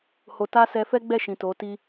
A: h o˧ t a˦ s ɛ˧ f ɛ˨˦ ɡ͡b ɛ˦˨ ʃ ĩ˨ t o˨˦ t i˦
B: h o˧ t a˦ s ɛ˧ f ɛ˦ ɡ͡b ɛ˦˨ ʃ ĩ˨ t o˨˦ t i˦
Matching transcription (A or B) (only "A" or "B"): B